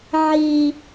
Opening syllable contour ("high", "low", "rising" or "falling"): high